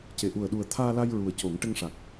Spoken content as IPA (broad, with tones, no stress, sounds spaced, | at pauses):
c e˨˩˨ ʔ u˨˩ ə̯ ɗ u˨˩ ə̯ t̪ʰ aː˧ l a˧ j ɹ u˨˩ ə̯ c o˨˩˦ ŋ ʈ ə˧ ŋ ʂ a˨˩ k̚